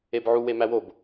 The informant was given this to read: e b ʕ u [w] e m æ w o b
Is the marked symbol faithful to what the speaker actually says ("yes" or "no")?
yes